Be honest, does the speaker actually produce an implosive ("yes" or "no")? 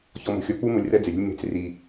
no